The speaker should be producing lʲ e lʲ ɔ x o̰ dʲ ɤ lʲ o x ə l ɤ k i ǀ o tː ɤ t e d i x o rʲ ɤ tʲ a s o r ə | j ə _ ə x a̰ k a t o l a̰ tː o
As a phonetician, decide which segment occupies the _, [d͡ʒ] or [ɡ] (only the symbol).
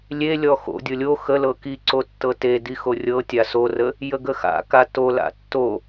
ɡ